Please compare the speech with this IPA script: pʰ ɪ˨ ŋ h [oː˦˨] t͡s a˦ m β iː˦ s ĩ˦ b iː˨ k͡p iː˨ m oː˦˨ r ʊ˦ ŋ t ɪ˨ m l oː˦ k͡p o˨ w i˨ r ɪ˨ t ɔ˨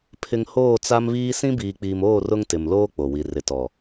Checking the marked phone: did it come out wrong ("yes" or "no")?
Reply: no